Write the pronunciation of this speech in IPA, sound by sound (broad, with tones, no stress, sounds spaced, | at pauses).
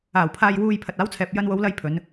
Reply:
aː˨˩ w pʰ aː˨ j w uː˨ j pʰ ɐ˨ t̚ aː˨˥ w t͡sʰ ɛː˨ p̚ j ɐ˧ n w o˨˧ w l ɐ˧ j pʰ ɵ˨˧ n